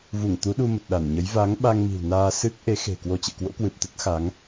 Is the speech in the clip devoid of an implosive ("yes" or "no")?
no